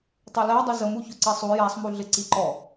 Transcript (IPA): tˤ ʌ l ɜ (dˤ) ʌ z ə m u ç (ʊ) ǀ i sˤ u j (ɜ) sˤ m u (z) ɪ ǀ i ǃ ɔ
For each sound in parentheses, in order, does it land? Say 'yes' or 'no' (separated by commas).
yes, yes, no, no